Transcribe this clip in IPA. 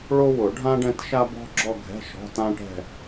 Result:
ɭ o˥ w ʊ˨˩˦ ɖʱ ã˥ ɖ ɛ̃˥˧ t ʃ a˥ b ɔ̤˥ ɡ͡ǁ ɔ˥˧ ɡʱ ɛ̤˧˥˧ ʃ ɔ̤˧˥˧ t ã˥ ʈ ɛ̤˥˧

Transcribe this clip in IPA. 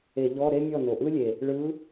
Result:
e˧˩˧ ʎ ɔ˧˥˧ ɾ e˥ mʲ ɔ˥˩ n o˨˩ ʔ ɯ˥ lʲ e˨˩ | ɭ ɯ˧˥

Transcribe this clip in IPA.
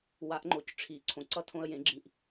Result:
w a˨˥ ʔ ŋ͡ǃ o˨ c ʈ͡ʂʰ i˨˩˦ ǀʰ õ˨ ǀ ʌ˥˨ tʰ õ˦ ə̯ j ẽ˨˩˦ ɡ͡ǁ ĩ˨ ʔ

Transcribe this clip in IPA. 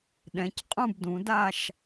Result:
ɗ ɛ̃˩˧ c qʼ ũ˦˨ b d ũ˩˧ d a˦˨ ʃ

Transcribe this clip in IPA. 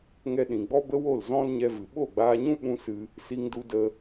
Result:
ŋ ɛ˧ ɗ ĩ˨ ɡ͡b ɔ˦ b ə˦ w o˦˨ l z ɔ̃˧ l ɲ ɛ˧ v ɨ˨ ɓ o˦˨ ɡ͡b aː˧ ɲ ũ˦ ɓ ũ˦ s ɨ˧ | s i˧ ŋ d u˧ d ə˧

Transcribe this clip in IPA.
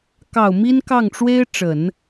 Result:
k ɑ˨˩ ʊ̯ m i˥ n k ɑ˥˩ ŋ ʈ͡ʂ w e˥ ɪ̯ ʈ͡ʂ ə˨˩˦ n

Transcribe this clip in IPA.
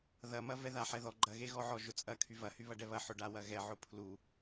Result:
ð ɐ m ɐ v ɛ ð a ħ ɛ ð ɔ ɡ͡ǃ ɐ ɣ e ɣ ɔ ʕ ɔ ʒ ʊ t͡sʼ ɐ kʰ y v ɐ h y β ɐ ɖ ɛ β ɐ ħ ʊ ɖ a w ɐ ɣ ɛ ʕ ʊ pʰ l u

